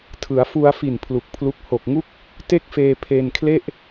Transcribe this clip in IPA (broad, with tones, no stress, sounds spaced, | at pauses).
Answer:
tʰ ɯ˩˦ a̯ f u˧ a̯ f i˨˩ n pʰ l u˨˩ k̚ pʰ l u˦˥ k̚ h o˨˩ k̚ ŋ u˥˩ k̚ | t e˥˩ k̚ f eː˧ pʰ e˧ n kʰ l e˥˩ ʔ